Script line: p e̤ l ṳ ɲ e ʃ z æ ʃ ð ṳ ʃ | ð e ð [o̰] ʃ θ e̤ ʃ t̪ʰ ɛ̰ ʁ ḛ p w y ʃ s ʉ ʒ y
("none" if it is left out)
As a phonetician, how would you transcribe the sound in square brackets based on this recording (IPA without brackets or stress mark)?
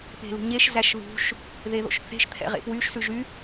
o̰